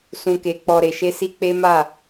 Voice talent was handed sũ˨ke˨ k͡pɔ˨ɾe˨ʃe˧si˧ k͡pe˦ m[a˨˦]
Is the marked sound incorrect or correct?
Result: incorrect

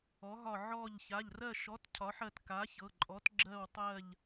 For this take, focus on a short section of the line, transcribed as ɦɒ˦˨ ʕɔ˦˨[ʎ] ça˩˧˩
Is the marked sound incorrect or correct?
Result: correct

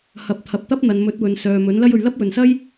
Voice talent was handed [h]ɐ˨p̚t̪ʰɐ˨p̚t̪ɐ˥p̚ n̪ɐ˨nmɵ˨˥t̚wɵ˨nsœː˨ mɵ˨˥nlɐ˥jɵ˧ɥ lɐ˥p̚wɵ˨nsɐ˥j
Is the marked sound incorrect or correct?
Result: correct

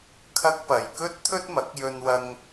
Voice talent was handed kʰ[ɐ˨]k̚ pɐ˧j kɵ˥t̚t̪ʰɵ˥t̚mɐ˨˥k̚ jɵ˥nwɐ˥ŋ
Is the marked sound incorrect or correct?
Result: incorrect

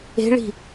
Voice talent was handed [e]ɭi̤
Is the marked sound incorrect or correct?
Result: incorrect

